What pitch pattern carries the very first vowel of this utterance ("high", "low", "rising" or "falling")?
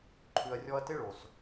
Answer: low